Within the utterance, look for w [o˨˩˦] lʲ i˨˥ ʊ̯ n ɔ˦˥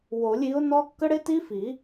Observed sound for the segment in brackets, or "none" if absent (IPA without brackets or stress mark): o˨˩˦